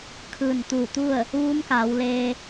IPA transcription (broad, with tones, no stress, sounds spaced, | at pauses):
kʰ ɯː˧˩ n t̪ uː˧˩ t̪ u˥˨ ə̯ | ʋ uː˧˥ m k aː˩˧ w l eː˧